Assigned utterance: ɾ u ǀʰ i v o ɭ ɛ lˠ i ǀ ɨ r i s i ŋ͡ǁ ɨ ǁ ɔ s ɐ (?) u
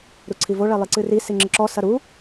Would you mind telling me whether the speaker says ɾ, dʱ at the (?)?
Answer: ɾ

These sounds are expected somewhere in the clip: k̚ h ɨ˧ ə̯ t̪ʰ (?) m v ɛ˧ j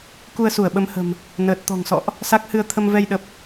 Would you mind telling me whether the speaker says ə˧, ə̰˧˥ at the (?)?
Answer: ə˧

